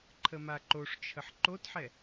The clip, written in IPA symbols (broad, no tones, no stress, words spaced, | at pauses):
ǃʰəmaǃoʂt͡ʃʰəħ ǃotħɛ